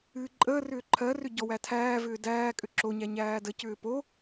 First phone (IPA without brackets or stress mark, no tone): ɨː